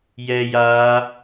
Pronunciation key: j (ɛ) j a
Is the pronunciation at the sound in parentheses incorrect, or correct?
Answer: correct